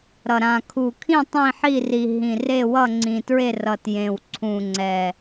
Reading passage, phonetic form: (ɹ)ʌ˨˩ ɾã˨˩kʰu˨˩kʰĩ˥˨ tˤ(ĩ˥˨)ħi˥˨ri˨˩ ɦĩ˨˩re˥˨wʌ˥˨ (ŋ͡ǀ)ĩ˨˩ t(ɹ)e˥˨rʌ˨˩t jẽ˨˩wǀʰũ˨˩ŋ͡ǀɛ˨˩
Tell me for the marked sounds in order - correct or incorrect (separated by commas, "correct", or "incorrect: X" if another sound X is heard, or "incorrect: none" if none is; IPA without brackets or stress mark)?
incorrect: ɾ, correct, correct, correct